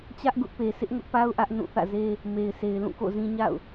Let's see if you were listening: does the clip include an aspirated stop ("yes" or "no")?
no